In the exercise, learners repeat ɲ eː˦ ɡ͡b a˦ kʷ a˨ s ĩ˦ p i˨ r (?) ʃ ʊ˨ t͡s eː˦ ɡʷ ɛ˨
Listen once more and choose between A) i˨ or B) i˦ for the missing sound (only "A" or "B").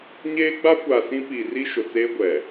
B